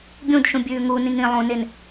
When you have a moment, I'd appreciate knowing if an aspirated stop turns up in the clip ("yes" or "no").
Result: no